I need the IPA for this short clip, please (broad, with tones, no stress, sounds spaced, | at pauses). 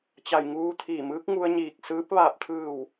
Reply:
t͡ɕ a˧˩ j ŋ uː˧ t̪ʰ iː˧˩ m ɯː˧˥ k̚ ŋ u˧ ə̯ ɲ iː˧˩ k̚ s ɯː˧˥ p̚ ʋ aː˧˩ p̚ t̪ʰ ɯː˧˩ w